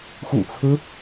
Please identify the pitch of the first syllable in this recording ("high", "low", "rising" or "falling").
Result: low